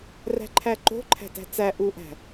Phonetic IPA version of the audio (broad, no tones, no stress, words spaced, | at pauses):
ræ̤ǃʰæǃo̤ ǃʰæ̤tæ̤t͡sæ ʔuʔæ̤